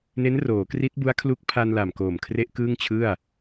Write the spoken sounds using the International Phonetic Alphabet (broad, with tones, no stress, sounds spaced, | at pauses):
n e˦˥ n r oː˩˦ k r i˦˥ t̚ b u˦˥ a̯ kʰ l u˦˥ k̚ pʰ a˧ n l a˨˩ m k oː˨˩ m kʰ r e˦˥ ʔ k ɯː˥˩ ŋ t͡ɕʰ ɯ˥˩ a̯